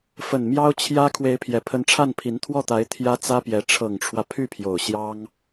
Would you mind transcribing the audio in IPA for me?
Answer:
f ə˨˩ n m j ɑ˥ ʊ̯ t͡ɕʰ j ä˥ kʰ w e˧˥ ɪ̯ pʰ j ɛ˨˩ pʰ ə˧˥ n ʈ͡ʂʰ a˥˩ n pʰ i˧˥ n t̪ʰ w ɔ˥˩ t̪ a˧˥ ɪ̯ t̪ʰ j ä˥ t͡s ä˥ p j ɛ˧˥ ʈ͡ʂʰ ɤ˨˩ ŋ ʈ͡ʂʰ w ä˦ pʰ y˥˩ pʰ j o˨˩ ʊ̯ ɕ j ɑ˥ ŋ

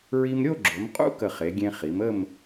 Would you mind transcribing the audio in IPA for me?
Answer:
ɹ i˧ m ɾʲ o˥˧ ɡ͡ǁ o˩˧ m qʼ ṵ˥ k ə˧˩ χ e˩˧ ɡʲ ẽ˧ χ i˩˧ m ə˥˧ m

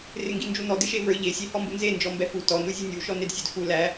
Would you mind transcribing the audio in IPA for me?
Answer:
r ɪ ŋ ɡ i n d͡ʒ u n ɔ d ɪ ʃ e v ə˞ ʎ e sʲ e h ɔ m b u n z e n d͡ʒ ɔ m b ɛ f u t ɔ n u zʲ u nʲ u ʃ ɔ n e d sʲ ɛ d f u l æ

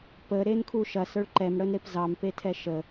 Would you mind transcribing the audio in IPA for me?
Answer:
p ə ɾ e n kʰ u ʃ ɐ s ə˞ ɭ ǃ ɛ m ɽ ə n ɾ e p z ɑ m p e tʰ ɛ ʃ ə

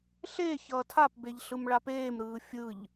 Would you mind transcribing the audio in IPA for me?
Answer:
ɬ e ç ʌː tʰ a p b e ʎ ɬ ɯ m ɭ a p eː m ɾ ɯː fʲ ɯ ʎ

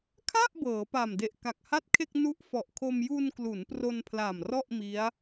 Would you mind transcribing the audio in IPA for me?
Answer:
kʰ a˥˩ ʔ b ɤː˩˦ p a˨˩ m d e˨˩ ʔ k a˨˩ k̚ h a˥˩ t̚ kʰ e˥˩ k̚ n u˦˥ ʔ f ɔ˨˩ ʔ kʰ o˧ m j u˧ n k l u˩˦ n p r o˧ n pʰ l a˨˩ m r ɔ˥˩ ʔ m i˦˥ a̯

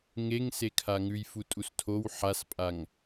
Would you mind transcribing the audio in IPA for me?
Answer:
ŋ e ŋ s e kʰ a ŋ ʉ j f u tʼ u s tʰ o w ħ a s pʼ a ŋ

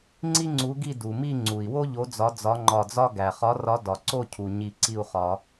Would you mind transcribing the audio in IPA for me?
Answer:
ŋ͡ǀ i˥ ŋ͡ǀ u˨˥ ɡ i˥˨ d u˩ m i˥˨ ŋ͡ǀ u˩ i̯ w o˥ ʎ o˨˥ d͡z ɒ˨˥ d͡z ɒ˨˥ ŋ͡ǃ ɒ˧˩ d͡z ɒ˥ ɡ æ˩ χ ɒ˨˥ r ɒ˨˥ d ɒ˩ ǀ o˥˨ cʰ u˩ ɲ i˧˩ ǀ i˥˨ u̯ χ ɒ˨˩˦

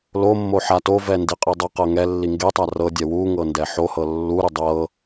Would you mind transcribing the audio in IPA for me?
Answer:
l o mː o ħ a t o v ɛ n d i qʼ i dˤ ɤ q ɤ ŋ ɛ lː i ŋ ɡ e tˤ a r ɤ dʲ ɛ w u ŋ ɤ n d ɛ ħ o h ɤ lː u ɾ u dˤ ɤ

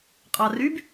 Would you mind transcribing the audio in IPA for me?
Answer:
qʼ ɑ r y b

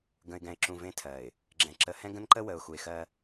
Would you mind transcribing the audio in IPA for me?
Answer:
ɡ ə̃˨ ɪ̯ ɡ ɛ̃˨ ɪ̯ ǁ ũ˨ v ẽ˦ tʰ ɜ˨ ɪ̯ | ɡ͡ǁ ɛ̃˨ ǁ ə˨ h ɛ̃˦ ɡ ə̃˦ n ǃ ə˦ w ə˨ ʊ̯ x u˨ ɪ̯ x ɜ˦

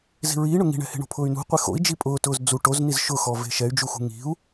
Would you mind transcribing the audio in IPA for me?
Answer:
z i̤ ɹ iː ɳ ʊ ŋ i̤ ɳ ɛ̤ h e̤ ɳ o̤ pʰ ʊː y̯ n ṳ qʷ e x o̰ i̯ d͡ʒ i pʼ ʊː t ʊː z d͡z u ʈ o z n i z ʃ ʊ x ɔ v e̤ ʃ ɛ y̯ d͡ʒ u x ṳ ŋ i̤ u̯

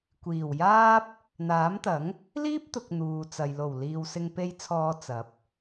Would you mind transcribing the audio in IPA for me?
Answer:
kʷ iː˨˩ w j aː˥ p̚ | n̪ aː˨˥ m t̪ ɐ˨˥ ŋ | l iː˥ p̚ t̪ ʊ˨ k̚ n̪ uː˨ t͡s ɐ˨ j l o˨˩ w l iː˨ w s ɪ˧ ŋ p e˧ j t͡sʰ ɔː˨˧ t͡s ɐ˨˥ p̚

